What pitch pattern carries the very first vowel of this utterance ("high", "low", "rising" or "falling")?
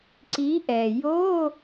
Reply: rising